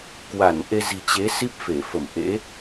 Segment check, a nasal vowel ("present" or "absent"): absent